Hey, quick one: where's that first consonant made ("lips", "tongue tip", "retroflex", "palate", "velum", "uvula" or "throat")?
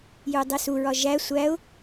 palate